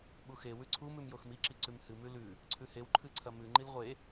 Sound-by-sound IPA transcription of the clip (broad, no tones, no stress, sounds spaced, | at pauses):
ɓ u x e w ʉ ǀʰ u m ʉ m j o x m i ǁ i ǀ ʉ m h ɨ m ʉ l ʉ | ǀʰ ʉ h e w ǃʰ ɨ ǀʰ ɐ m ʉ ŋ͡ǃ i l ʁʷ e